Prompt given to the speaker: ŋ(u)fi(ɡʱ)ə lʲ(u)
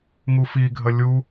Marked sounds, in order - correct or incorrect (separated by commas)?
correct, correct, correct